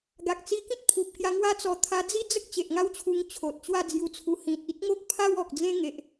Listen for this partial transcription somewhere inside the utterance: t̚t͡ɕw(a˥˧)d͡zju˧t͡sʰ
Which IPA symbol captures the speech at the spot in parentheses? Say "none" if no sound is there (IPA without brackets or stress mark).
a˥˧